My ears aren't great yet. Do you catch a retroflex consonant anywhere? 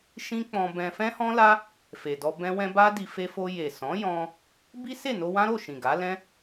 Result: no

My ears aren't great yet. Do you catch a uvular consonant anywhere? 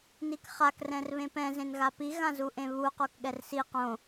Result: yes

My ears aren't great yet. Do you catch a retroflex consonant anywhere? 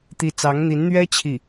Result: no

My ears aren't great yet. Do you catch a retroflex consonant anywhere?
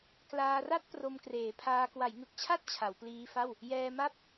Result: no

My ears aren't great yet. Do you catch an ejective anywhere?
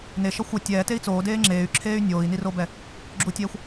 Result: no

